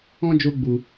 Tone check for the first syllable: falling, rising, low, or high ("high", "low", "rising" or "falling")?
high